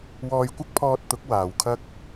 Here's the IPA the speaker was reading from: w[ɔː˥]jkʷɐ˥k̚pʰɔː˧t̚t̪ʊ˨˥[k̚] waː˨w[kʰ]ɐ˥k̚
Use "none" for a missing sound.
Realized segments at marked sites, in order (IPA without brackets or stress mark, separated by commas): ɔː˧, k̚, kʰ